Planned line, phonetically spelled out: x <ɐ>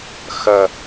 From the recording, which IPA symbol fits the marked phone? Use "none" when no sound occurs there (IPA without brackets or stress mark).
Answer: ɐ